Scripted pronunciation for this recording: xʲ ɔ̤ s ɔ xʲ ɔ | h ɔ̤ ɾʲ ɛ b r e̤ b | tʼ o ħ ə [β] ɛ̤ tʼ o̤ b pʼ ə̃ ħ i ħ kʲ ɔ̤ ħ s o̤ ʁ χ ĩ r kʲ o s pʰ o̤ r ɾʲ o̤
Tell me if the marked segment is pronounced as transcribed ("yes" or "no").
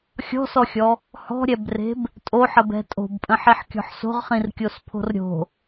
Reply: no